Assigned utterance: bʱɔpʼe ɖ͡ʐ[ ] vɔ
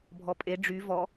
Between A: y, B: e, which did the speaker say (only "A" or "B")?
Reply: A